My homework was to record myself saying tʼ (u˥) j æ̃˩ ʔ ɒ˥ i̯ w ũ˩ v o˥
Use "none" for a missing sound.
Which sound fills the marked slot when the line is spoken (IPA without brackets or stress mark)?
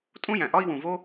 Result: ũ˥